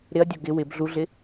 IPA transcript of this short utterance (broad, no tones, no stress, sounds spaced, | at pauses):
ɾ ɪ ɐ̯ dʲ o ɡ ɪ w ɪ b ɮ u ɮ ɪ